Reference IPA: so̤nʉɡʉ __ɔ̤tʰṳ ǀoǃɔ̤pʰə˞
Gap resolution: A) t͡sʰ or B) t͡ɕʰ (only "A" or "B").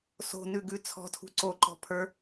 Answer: A